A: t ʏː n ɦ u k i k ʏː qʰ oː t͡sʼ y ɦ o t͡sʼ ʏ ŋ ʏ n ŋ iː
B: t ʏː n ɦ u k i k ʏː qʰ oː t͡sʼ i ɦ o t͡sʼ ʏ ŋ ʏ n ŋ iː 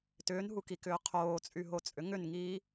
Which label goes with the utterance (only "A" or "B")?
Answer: A